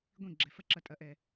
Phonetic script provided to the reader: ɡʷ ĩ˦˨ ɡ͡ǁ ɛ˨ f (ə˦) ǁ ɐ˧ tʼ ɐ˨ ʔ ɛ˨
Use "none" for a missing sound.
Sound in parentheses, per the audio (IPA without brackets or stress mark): ɐ˦